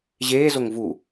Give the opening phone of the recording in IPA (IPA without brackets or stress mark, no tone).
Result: ʑ